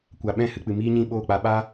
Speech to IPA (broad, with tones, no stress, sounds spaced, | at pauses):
kʷ a˨ ɓ ɛ̃˦˨ h ɨ˨ k͡p ɨ˨ m iː˦ ɲ ĩ˦˨ ɓ oː˦˨ k͡p a˧ ɓ a˦